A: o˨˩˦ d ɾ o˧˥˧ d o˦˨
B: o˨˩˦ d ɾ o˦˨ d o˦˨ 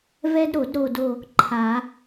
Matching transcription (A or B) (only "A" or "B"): B